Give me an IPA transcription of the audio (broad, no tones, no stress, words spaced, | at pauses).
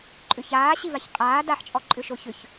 ǃʼʏçaːɕivaç qʼaː daħt͡ʃʼɔ ǃʼʏʃoçʏç